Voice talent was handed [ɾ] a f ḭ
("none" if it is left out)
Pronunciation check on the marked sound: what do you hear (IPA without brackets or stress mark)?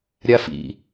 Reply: ɾʲ